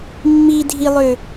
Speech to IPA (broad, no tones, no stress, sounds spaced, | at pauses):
mː i dʱ i lˠ ø